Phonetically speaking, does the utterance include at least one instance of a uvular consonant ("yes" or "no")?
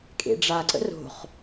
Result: yes